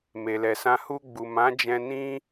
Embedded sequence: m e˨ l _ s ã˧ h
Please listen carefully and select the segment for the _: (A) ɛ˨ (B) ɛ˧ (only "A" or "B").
A